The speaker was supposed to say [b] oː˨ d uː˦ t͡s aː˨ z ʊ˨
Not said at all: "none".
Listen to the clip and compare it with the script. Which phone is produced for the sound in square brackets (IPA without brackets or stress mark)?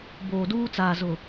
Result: b